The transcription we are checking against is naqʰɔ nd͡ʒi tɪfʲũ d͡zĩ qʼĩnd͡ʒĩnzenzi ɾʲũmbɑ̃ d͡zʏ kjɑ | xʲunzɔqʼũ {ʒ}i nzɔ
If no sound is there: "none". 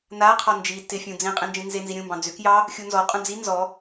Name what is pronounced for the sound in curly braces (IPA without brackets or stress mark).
d͡z